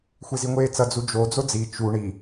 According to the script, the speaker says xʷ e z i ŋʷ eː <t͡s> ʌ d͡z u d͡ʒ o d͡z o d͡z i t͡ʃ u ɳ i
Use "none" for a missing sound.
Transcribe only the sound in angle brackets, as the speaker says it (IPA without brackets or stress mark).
t͡s